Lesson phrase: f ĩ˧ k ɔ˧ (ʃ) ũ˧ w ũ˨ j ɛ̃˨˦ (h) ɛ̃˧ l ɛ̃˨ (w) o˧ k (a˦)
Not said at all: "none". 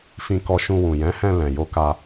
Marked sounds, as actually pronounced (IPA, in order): ʃ, h, j, a˧

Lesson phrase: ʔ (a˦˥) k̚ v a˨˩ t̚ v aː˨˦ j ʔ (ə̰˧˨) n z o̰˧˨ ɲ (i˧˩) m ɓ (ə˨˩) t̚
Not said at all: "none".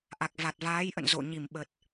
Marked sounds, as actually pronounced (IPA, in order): a˨˩, ə̰˧˨, i˧˩, ə˨˩

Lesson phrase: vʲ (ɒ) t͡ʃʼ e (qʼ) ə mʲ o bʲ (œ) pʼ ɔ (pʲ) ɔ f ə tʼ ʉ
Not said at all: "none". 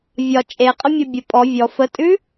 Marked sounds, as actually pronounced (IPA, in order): ɒ, qʼ, ə, vʲ

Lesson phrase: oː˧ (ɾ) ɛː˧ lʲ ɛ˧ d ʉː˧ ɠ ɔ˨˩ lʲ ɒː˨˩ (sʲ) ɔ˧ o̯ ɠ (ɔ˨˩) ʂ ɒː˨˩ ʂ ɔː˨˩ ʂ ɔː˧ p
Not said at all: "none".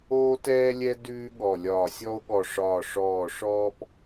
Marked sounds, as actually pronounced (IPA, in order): t, sʲ, ɔ˨˩

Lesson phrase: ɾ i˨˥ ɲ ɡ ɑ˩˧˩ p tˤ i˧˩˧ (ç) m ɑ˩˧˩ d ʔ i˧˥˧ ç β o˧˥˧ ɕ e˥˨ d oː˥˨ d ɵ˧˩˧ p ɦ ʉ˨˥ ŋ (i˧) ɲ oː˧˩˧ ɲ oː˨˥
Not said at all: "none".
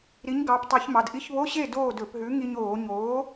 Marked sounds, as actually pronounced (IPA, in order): ç, i˧

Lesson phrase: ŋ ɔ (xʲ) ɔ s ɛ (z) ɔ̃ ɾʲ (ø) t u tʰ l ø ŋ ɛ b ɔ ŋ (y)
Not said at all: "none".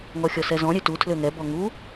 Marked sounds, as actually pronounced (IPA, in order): xʲ, z, ø, u

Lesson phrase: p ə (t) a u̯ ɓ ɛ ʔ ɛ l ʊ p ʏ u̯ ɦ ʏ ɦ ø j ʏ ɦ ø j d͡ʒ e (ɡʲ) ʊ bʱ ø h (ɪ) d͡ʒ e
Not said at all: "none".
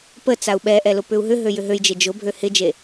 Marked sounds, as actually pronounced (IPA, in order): t͡s, d͡ʒ, ɪ

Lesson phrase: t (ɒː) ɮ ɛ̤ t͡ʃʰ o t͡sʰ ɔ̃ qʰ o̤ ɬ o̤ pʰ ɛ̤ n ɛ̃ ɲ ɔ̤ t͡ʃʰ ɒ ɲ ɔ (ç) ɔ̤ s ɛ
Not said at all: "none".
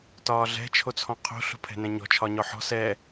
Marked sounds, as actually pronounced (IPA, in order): ɒː, ħ

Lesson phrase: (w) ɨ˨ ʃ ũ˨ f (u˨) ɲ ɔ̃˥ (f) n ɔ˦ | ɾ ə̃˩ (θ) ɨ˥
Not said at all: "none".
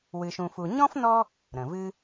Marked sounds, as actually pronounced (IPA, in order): w, u˨, f, v

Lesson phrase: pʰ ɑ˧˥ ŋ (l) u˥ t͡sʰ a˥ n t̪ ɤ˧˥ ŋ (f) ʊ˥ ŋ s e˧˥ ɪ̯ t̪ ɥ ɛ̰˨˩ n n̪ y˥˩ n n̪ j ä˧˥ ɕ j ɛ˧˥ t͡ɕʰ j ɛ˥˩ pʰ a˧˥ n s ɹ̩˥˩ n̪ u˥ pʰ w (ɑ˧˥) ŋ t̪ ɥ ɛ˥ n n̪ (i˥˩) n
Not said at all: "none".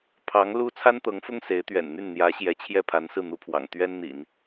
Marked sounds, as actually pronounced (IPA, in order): l, f, ɑ̰˨˩, ḭ˨˩˦

